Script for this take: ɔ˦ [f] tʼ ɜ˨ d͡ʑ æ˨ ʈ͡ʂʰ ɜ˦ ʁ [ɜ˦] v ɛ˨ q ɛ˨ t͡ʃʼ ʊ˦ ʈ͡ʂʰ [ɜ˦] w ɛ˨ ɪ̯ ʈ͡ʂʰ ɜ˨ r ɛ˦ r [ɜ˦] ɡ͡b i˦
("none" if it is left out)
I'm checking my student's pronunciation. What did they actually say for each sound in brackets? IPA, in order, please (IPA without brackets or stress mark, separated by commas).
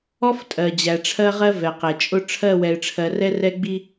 f, ɜ˦, ɜ˦˨, ɛ˦